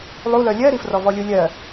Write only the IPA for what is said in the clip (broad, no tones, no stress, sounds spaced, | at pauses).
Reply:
lˠ u l œ lʲ ɜ ɾ i f r ɔ v ɔ lʲ u lʲ ɜ